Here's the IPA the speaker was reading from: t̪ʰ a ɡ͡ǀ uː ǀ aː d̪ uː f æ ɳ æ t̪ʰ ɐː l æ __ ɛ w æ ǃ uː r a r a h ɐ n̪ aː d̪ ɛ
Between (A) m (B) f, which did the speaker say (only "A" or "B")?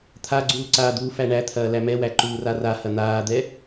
A